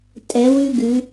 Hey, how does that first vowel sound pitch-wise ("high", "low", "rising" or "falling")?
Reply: rising